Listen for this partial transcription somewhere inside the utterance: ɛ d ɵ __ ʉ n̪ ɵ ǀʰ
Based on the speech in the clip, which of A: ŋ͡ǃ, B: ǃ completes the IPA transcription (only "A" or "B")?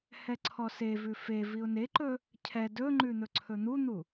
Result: A